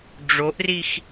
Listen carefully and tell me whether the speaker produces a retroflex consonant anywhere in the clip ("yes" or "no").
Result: yes